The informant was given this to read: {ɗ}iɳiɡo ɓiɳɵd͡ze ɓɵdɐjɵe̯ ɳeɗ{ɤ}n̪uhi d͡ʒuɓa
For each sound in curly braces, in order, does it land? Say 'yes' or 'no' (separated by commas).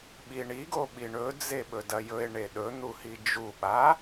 no, no